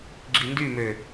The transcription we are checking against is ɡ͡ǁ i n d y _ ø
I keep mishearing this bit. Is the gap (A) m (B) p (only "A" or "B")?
A